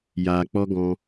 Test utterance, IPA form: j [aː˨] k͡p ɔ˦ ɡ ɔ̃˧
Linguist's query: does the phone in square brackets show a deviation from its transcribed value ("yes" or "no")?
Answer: no